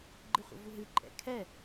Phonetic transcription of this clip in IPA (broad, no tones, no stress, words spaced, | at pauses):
ɡ͡ǃɨχʷə̰vuɦɨ ǃʼɛ̰kʰɛ